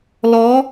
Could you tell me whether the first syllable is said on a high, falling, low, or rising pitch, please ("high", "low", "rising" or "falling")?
rising